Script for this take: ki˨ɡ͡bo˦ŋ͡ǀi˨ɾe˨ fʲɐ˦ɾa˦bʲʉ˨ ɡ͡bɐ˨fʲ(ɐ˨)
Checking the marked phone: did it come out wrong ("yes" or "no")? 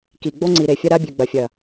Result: no